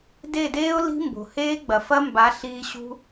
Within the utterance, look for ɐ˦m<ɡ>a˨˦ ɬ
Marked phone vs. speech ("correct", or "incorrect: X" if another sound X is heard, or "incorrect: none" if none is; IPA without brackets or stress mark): incorrect: b